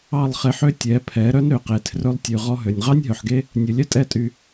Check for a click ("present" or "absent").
absent